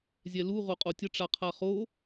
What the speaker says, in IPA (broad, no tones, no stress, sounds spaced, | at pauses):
zʲ ɛ l u ʁ o qʼ o tʲ ə ʈ͡ʂ a qʰ a χ o